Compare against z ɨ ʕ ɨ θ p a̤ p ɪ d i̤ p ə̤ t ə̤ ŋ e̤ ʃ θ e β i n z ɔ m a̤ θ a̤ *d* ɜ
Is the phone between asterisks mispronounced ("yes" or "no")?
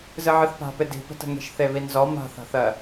yes